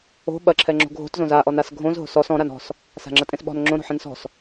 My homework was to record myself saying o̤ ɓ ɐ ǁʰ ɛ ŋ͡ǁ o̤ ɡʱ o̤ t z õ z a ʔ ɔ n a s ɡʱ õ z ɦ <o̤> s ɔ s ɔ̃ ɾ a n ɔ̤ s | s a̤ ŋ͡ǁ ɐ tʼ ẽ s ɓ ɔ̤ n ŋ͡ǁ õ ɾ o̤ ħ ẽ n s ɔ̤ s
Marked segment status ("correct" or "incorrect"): correct